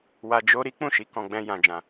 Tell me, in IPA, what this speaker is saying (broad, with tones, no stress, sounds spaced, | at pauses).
w a˧ d͡ʒ o˦ ɾ i˦ k͡p ũ˦˨ ʃ i˨˦ k ɔ̃˧ ɡ͡b ɛ̃˧ j ã˧ d͡ʒ ã˧